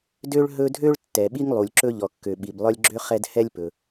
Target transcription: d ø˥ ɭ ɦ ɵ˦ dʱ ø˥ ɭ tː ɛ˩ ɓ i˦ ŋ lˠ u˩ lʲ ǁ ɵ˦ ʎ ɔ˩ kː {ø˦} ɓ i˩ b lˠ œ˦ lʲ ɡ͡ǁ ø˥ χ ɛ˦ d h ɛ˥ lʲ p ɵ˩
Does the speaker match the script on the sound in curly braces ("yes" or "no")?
no